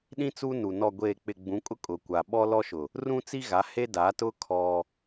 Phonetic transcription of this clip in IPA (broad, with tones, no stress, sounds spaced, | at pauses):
ɗ ĩ˦ t͡s u˦ n u˨ n ɔ˨ ɡʷ eː˨ k͡p ɪ˨ ɡ͡b ũ˨˦ kʼ ʊ˦ kʼ ʊ˨ kʷ a˨ ɓ ɔ˦ l ɔ˦ ʃ ʊ˨ | r ũ˦ t͡s i˦ ɣ a˨˦ h e˦ d a˨˦ t ʊ˦ kʰ ɔ˦